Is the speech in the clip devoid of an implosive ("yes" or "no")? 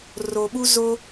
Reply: no